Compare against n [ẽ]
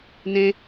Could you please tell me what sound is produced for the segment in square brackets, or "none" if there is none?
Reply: ẽ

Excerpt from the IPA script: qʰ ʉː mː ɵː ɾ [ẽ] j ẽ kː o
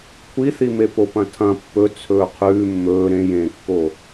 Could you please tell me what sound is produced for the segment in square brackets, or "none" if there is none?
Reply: ẽ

